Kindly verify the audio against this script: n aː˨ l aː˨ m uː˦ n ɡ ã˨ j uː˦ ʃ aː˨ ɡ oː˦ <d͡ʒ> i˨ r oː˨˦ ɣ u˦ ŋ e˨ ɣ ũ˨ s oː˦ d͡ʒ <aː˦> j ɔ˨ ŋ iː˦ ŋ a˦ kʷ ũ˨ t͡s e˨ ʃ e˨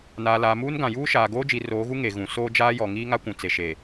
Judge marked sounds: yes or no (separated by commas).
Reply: yes, yes